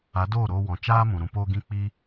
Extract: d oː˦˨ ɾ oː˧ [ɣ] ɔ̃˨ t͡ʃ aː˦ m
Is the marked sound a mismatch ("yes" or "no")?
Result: yes